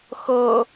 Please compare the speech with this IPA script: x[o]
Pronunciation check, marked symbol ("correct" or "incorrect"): incorrect